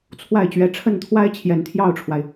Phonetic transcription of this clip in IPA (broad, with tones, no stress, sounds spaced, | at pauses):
t͡sʰ w a˥˩ ɪ̯ t͡ɕ ɥ ɛ˧˥ ʈ͡ʂʰ ə˥˩ n t̪ʰ w a˥ ɪ̯ t͡ɕʰ j ɛ˨˩ n t̪ʰ j ɑ˥˩ ʊ̯ ʈ͡ʂʰ w a˩ ɪ̯